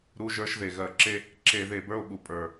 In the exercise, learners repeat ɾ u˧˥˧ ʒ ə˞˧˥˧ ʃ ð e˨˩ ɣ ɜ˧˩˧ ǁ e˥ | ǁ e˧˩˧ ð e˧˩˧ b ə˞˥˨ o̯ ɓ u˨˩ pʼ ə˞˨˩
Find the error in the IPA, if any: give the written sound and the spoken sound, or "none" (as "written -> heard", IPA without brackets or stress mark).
none